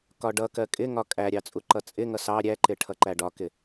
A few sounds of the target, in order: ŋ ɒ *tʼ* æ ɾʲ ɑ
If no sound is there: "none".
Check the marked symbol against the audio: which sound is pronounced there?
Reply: kʼ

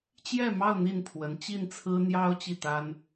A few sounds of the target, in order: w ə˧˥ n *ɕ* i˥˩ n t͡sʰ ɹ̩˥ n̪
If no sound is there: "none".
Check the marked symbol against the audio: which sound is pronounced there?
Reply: t͡ɕ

